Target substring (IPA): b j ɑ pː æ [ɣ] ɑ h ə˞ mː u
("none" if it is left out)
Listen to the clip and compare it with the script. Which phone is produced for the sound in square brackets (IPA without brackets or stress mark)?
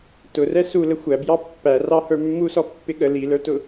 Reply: r